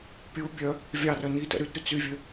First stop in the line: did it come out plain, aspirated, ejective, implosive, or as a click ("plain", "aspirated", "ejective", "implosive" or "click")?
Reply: plain